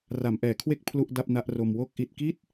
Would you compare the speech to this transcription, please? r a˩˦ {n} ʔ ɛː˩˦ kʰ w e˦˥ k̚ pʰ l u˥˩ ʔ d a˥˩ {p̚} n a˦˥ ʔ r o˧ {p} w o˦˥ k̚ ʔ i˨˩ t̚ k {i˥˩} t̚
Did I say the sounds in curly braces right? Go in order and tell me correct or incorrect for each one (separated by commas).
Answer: incorrect, correct, incorrect, correct